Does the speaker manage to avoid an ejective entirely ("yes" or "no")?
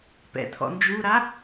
yes